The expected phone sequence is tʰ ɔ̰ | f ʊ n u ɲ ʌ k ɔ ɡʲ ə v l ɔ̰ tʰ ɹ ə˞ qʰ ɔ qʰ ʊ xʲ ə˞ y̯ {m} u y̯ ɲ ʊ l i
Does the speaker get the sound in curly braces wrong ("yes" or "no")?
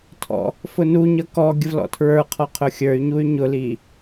yes